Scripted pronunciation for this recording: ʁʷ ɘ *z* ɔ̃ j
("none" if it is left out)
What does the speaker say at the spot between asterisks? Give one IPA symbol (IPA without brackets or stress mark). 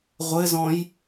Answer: z